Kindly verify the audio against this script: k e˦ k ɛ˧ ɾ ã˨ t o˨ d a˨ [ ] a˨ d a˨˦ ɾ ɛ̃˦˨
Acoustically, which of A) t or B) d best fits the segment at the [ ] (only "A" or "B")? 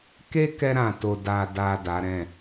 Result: B